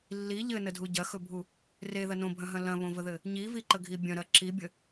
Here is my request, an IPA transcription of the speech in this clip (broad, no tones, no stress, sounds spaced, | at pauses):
lː i ʎ ɘ n ə dʱ u ɟ ɐ x ɵ bʱ u | r e ð ɐ n õ bʱ ɐ̃ ɦ ɐ̃ l ɐ̃ β õ v ə ð ɘ | ɲ i v i ǃ ə ɡʱ i bʲ ɐ̃ ɾ ɐ ǁ i bʲ ə